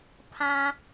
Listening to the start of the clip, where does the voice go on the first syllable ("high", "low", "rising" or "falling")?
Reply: high